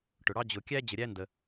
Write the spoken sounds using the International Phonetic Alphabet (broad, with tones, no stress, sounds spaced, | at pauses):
ʈ ʊ˩ ɽ ɑ˦ d͡ʑ ʊ˨ kʲ æ˥ d͡ʑ ə˨ ɾʲ æ˦ n d ə˩